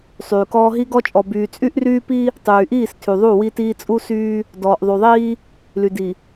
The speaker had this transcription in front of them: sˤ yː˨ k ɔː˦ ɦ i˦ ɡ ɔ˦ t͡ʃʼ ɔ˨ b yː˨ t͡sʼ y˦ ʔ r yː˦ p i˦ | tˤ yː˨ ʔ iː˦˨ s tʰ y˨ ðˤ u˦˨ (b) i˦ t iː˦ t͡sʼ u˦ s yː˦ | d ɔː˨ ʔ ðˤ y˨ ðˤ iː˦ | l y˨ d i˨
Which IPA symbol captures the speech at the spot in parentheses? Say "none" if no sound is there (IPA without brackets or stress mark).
w